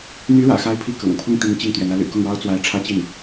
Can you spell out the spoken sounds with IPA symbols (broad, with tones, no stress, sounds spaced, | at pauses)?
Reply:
n̪ y˧˥ ɻ ä̰˨˩ x a˥˧ ɪ̯ pʰ i˥˩ k ɤ̰˨˩ ŋ pʰ ʊ˥˩ ŋ t̪ i˧˥ ŋ t͡ɕ i˥˩ ŋ t̪ ɥ ɛ˧˥ n ä˧˥ l y̰˨˩ k ʊ˥˩ ŋ ɻ ɑ˥ ʊ̯ t͡s w a˧˥ ɪ̯ ʈ͡ʂʰ ä˥ t͡ɕ i˥˩ n